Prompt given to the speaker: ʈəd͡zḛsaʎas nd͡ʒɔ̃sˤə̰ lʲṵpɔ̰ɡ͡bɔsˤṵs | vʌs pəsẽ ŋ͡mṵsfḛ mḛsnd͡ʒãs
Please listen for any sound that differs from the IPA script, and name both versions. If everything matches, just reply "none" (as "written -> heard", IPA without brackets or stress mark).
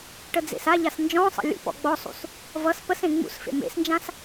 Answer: none